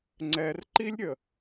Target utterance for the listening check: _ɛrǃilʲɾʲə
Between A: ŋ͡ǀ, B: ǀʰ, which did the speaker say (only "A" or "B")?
A